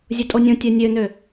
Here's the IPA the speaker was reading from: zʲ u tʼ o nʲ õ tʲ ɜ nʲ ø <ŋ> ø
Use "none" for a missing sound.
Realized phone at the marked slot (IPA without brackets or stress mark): n